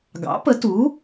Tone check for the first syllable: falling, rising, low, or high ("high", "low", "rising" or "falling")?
rising